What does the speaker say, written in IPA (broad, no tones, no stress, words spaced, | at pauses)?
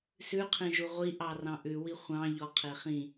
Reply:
sʉqʰẽʒu ʁʷiʔɑrɑ̃ ʔʉwi χʷɑ̃ʎɔqʰe χĩ